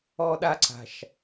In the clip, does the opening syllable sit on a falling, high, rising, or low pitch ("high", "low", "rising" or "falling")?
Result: high